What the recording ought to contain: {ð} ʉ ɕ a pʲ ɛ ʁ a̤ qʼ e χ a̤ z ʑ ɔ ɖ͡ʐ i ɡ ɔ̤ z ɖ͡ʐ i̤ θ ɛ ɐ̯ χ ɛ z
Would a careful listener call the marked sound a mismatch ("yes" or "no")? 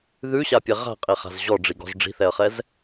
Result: no